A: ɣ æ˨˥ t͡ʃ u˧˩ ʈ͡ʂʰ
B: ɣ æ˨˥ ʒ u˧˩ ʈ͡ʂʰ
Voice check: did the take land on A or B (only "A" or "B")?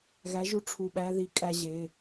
B